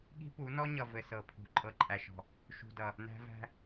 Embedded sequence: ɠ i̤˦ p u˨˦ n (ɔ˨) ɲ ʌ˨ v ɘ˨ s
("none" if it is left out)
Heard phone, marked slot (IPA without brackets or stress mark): ɔ˦